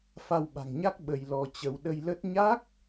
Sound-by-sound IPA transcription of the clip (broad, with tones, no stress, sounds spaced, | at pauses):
f a˧ w ɓ a̤˨˩ ŋ ɲ a˦˥ k̚ ɓ ə˧ j l ɔ˧ t͡ɕ ə˧ w ɗ ə˧ j l ə˦˥ t̚ ɲ a˦˥ k̚